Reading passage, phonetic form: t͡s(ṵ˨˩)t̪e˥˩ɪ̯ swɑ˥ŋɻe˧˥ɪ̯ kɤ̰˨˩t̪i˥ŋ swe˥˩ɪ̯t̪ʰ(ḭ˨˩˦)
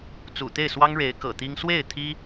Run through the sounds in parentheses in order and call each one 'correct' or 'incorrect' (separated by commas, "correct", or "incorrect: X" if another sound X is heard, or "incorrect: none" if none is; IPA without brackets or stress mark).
correct, incorrect: i˥